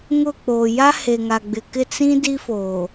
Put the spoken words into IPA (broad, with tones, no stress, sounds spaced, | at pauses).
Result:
ŋ ʊ˦˨ k͡p o˨ j a˦ h e˨ ŋ a˨ ɡ͡b ɪ˨ k ɪ˦˨ t͡s ĩ˦ d i˦ f oː˨